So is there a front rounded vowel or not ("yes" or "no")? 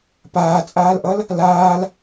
no